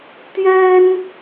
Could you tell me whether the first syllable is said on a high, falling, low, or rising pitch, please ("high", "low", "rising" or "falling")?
high